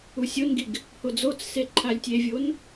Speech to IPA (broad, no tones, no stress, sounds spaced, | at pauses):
u sʲ o n ɡ i ɡ | h o d͡z o t͡s s e ǃʰ a lʲ tʲ e vʲ o n